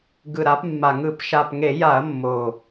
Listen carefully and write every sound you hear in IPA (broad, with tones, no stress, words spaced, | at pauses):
ɡɯ˨˩ɾa˩˧pmːa˨˩ŋɯ˧˩˧p ʃa˨˩pŋe˧˩˧ja˧˩˧ɐ̯ mːo˨˩